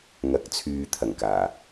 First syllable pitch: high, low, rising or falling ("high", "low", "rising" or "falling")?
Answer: rising